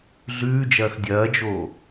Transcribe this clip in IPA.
ɮ ʉː d͡ʒ ɐː x dʲ ɐː d͡ʒ oː

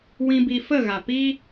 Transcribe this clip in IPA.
w ĩ˧ b i˧ f ə˦˨ ɣ a˨ p i˦

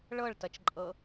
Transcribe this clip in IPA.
ɭ ɤ ɭ t ʌ t͡ʃ ǃʼ ɤ

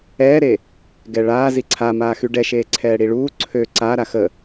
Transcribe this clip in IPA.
ɛː ɾ e | ɡ ɛ ɭ aː z i ǀʰ a m aː x y ɖ ɛ ʃ eː ǀʰ ɛː ɽ i ɭ uː ǀʰ ø ǀ a ɾ a x ə

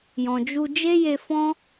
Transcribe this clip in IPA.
j ɔ̃˨ d͡ʒ u˧ d͡ʒ e˦ j e˧ f ɔ̃˦

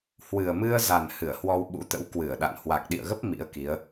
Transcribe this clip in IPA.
h w ɨ˨˩ ə̯ m ɨ˧ ə̯ z a˨˩ n h ɨ˧˩ ə̯ h w ɔ˧ w ɓ ṵ˧˥ t̪ ə̰˧˥ w k w ɨ˧˩ ə̯ ɗ a̰˧˨ n h w a˨˩ k̚ ɗ ḭ˧˨ ə̯ ɣ ə˦˥ p̚ m ḭ˧˥ ə̯ k i˨˦ ə̯

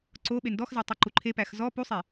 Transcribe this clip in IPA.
ǀ o ɓ e n d ɔ x z æ tˤ o ǃ u ǃʰ e p æ x z ɔ p u sˤ e

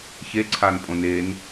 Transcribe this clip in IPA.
ç e ǀʰ a n pʼ õ n e n

